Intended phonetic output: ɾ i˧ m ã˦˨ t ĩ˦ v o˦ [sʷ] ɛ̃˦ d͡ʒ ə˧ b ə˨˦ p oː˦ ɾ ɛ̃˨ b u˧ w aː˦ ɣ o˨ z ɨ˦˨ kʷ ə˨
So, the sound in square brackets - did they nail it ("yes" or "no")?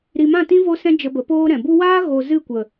no